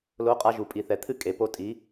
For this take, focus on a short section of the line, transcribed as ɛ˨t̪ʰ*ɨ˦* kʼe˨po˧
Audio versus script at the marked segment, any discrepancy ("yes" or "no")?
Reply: no